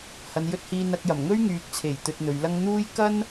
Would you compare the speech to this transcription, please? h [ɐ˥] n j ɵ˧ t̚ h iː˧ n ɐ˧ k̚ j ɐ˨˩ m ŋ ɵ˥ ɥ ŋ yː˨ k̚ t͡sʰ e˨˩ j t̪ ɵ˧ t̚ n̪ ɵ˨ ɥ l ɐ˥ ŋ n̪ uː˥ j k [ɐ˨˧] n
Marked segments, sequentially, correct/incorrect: incorrect: ɐ˨, incorrect: ɐ˥

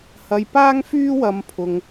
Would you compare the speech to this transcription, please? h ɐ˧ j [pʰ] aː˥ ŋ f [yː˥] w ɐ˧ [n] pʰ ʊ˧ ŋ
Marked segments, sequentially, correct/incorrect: incorrect: p, correct, incorrect: m

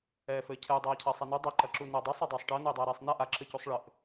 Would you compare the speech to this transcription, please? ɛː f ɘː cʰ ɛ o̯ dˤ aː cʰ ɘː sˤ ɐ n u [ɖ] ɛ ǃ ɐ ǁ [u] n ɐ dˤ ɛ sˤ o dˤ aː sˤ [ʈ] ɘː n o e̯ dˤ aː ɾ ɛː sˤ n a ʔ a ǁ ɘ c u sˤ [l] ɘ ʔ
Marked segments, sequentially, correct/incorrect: incorrect: dˤ, correct, correct, incorrect: ɭ

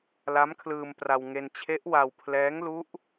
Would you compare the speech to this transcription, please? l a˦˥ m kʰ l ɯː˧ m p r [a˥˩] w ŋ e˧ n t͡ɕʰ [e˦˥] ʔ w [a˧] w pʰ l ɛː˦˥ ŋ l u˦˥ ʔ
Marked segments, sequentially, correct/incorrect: incorrect: a˧, correct, correct

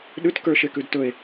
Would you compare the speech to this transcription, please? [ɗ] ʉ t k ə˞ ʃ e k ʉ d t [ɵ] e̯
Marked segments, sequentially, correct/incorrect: correct, correct

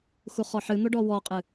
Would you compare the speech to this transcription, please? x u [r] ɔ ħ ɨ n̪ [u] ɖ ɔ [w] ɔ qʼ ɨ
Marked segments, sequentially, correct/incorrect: incorrect: χ, incorrect: o, correct

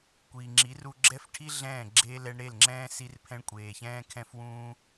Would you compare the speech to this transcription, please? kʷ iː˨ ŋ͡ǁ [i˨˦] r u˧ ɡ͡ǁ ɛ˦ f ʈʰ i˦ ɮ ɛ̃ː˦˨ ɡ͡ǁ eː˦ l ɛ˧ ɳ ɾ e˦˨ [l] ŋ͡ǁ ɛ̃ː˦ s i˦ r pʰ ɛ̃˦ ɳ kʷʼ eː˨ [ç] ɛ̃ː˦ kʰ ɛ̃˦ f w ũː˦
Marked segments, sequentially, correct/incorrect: correct, correct, correct

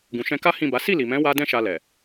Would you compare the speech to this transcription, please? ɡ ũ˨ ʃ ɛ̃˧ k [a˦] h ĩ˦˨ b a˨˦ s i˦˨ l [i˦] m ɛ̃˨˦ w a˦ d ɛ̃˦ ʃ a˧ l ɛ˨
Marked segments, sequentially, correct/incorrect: correct, incorrect: i˨

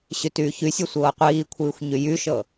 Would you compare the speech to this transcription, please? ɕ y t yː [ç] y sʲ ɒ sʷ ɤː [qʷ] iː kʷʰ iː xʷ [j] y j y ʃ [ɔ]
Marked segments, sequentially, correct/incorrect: correct, correct, incorrect: ɲ, incorrect: ɤ

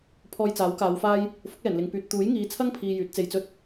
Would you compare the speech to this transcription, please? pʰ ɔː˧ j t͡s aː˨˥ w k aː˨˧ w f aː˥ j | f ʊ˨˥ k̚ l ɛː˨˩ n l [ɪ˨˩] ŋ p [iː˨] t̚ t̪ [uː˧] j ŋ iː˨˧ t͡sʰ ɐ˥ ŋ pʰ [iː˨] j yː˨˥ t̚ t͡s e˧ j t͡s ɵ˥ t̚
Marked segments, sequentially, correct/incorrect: incorrect: ɪ˨, incorrect: yː˨, incorrect: uː˨˥, correct

